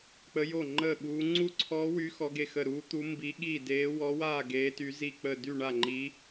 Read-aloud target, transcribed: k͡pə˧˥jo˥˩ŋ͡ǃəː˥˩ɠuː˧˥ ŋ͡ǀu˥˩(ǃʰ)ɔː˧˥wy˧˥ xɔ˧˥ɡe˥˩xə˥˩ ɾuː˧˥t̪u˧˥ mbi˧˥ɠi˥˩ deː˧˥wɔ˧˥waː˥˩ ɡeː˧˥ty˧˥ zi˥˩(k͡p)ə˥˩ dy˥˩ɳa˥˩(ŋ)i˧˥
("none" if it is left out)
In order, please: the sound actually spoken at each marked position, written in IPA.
ǀʰ, k͡p, ŋ͡ǃ

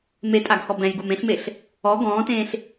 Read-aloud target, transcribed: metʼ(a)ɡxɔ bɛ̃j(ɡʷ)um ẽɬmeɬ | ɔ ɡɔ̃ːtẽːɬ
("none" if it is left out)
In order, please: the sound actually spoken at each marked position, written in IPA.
a, ɡ

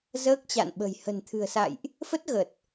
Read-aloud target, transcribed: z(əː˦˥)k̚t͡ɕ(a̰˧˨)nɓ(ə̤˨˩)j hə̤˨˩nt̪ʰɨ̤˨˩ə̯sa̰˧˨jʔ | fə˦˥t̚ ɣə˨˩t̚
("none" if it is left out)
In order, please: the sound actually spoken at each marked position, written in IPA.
əː˦˥, a̰˧˨, ə̤˨˩

